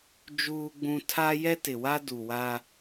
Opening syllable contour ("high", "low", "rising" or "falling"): high